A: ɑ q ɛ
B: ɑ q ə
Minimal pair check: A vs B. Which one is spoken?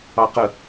B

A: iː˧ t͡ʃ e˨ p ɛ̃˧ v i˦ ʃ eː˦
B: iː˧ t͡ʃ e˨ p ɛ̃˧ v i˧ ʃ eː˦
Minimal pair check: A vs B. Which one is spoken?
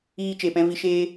B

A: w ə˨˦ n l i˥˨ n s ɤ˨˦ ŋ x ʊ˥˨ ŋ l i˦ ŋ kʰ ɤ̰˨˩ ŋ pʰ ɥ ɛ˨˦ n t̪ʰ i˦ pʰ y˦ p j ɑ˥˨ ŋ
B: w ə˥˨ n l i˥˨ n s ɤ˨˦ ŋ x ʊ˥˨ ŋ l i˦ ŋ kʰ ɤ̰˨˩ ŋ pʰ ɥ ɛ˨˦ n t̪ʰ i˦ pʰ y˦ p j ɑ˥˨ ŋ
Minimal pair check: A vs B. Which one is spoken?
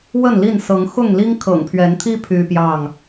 B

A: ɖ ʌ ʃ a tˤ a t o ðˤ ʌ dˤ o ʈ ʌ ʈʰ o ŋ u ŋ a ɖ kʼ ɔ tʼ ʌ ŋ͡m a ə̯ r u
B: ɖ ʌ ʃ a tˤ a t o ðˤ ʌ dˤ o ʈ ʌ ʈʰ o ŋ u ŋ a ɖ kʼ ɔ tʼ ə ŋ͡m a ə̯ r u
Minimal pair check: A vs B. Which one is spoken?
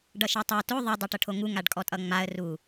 A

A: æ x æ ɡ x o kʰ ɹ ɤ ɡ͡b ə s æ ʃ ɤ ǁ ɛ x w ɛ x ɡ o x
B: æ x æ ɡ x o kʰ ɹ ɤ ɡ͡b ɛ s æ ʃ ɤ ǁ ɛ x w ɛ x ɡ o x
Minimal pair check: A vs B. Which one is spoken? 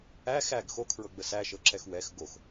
A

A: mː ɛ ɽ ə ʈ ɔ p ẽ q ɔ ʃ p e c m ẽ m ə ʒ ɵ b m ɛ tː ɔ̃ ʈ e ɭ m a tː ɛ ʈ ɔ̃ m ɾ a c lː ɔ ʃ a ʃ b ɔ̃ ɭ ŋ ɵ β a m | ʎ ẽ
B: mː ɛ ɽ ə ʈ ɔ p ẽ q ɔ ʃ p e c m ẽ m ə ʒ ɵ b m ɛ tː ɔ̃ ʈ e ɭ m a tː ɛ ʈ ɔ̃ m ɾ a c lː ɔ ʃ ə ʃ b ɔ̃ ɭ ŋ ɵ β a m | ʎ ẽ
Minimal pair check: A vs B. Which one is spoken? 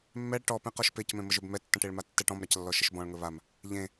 B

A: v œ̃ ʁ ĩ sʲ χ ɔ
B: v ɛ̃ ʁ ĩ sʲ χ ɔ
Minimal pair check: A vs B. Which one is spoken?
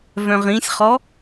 A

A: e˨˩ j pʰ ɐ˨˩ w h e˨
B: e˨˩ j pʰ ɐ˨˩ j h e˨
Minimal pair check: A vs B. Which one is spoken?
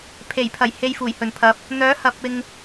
B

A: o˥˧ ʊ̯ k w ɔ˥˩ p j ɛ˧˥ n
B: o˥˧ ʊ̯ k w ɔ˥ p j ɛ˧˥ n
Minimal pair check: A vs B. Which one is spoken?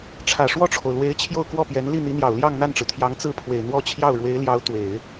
A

